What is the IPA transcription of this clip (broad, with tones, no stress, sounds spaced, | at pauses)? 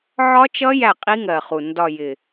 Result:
ʕ ɒ˦˥ t͡ʃ ʌ˦˥ j æ˥˩ qʼ i˦˥ ŋ ɜ˨˩ χ u˨˩ n d ɒ˨˩ j ɪ˨˩